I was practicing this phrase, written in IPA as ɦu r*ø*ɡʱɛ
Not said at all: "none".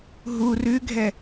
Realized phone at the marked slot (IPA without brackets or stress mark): ʉ